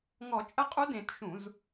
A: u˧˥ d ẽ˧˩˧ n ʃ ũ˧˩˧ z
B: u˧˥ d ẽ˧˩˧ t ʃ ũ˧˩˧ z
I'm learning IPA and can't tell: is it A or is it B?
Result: B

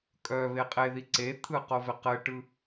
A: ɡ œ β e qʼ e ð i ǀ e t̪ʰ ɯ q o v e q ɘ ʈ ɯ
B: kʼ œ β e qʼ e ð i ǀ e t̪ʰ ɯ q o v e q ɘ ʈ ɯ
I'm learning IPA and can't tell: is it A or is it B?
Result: B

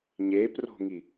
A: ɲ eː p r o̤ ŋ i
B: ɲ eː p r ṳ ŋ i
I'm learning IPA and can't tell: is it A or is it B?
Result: A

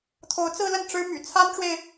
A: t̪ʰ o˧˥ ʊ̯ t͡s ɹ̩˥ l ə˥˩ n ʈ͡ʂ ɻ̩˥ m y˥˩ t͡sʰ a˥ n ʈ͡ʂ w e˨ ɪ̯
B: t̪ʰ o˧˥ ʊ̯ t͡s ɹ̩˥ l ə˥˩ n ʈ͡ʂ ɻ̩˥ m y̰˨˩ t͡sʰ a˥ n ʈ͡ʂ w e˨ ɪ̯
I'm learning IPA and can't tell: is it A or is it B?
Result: B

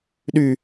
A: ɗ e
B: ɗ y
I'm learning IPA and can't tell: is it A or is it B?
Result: B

